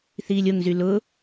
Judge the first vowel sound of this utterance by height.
high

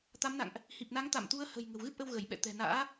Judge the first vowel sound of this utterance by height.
low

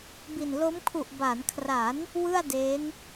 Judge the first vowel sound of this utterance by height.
high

